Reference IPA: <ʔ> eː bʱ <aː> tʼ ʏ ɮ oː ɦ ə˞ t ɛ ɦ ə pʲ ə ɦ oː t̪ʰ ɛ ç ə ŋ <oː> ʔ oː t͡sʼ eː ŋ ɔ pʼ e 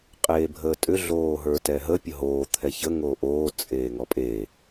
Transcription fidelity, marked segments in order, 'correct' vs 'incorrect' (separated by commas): incorrect, incorrect, correct